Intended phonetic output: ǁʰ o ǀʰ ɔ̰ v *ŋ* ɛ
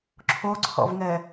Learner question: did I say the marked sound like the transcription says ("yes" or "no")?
yes